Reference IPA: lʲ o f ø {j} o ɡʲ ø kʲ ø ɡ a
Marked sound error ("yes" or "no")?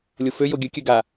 no